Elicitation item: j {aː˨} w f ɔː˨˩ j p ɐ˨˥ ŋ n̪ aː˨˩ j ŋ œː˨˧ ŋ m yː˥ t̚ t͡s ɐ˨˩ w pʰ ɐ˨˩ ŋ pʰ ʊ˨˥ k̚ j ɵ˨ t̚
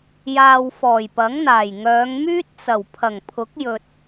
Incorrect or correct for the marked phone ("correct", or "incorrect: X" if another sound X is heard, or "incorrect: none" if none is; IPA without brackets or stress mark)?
correct